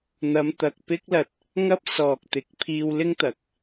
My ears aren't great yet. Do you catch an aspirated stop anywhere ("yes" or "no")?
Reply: yes